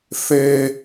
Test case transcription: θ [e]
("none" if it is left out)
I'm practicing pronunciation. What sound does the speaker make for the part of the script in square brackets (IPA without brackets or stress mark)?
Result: e